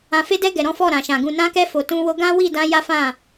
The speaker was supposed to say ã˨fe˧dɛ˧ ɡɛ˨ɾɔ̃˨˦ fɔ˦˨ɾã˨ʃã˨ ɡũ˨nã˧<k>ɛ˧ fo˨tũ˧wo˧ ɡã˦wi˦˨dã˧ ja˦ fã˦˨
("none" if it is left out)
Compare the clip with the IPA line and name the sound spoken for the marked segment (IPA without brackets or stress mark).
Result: k